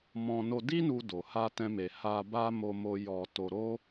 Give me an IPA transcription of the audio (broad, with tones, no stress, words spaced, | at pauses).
mɔ̃˧ no˧di˦nu˧ do˨ ha˧tɛ̃˧me˨ ha˧ ba˦ mo˧mo˧ jɔ˧ to˧ɾo˦